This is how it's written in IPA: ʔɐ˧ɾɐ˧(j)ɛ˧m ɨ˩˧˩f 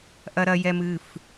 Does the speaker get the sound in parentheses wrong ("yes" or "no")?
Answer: no